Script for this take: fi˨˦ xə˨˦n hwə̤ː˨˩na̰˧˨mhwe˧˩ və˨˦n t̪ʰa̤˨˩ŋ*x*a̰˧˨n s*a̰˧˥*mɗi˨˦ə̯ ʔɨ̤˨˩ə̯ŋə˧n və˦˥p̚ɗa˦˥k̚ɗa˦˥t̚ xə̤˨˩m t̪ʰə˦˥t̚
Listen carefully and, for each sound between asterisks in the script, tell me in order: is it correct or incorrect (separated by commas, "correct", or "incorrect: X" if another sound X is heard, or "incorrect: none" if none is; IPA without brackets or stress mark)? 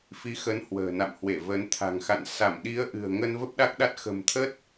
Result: correct, incorrect: a˧˩